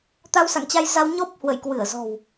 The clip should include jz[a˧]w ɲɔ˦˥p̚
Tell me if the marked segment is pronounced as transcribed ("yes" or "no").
yes